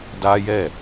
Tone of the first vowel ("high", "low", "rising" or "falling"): high